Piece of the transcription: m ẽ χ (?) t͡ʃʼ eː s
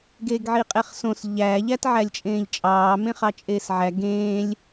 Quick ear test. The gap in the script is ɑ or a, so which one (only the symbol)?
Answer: ɑ